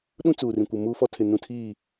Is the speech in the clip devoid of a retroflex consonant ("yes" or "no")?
yes